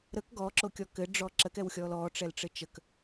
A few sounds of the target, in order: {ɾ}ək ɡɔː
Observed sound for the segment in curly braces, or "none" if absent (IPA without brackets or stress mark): ɾ